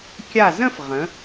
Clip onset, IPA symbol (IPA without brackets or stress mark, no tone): kʲ